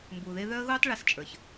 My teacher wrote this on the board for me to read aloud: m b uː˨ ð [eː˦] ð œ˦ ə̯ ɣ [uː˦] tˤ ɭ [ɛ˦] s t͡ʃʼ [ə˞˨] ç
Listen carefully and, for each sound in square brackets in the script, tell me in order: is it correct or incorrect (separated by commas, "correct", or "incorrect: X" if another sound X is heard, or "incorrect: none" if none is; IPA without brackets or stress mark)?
incorrect: e˦, correct, incorrect: ɛ˧, correct